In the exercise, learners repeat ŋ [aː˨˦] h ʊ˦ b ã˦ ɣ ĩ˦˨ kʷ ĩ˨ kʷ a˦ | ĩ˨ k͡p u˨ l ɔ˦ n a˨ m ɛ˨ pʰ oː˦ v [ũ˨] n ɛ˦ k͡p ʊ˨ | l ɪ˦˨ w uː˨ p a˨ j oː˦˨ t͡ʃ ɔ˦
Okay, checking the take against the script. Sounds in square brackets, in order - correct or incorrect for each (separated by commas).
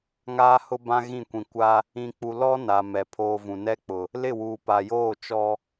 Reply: incorrect, correct